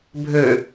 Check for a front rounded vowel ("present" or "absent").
present